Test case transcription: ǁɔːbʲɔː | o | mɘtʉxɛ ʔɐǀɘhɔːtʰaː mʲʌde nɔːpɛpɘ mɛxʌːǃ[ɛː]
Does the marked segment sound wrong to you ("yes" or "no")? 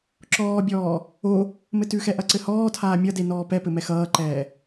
no